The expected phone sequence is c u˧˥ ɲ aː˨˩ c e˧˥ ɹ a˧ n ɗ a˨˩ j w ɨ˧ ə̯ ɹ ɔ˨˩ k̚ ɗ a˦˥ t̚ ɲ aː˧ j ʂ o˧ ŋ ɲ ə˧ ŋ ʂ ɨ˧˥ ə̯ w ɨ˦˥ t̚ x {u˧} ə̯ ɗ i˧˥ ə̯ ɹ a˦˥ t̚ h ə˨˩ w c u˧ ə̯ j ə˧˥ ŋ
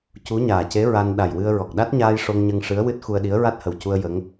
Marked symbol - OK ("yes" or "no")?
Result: yes